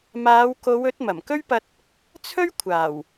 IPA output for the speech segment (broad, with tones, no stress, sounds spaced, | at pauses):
m aː˨˧ w k o˨˧ w ɵ˨˥ t̚ m ɐ˨˩ m k ɵ˥ ɥ p ɐ˧ t̚ | t͡sʰ ɵ˥ ɥ kʷʰ aː˨˩ w